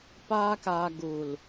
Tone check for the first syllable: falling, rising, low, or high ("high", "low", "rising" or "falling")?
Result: high